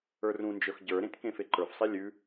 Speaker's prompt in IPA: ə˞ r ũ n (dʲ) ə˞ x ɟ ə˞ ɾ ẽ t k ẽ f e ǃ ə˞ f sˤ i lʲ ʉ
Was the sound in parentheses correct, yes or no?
no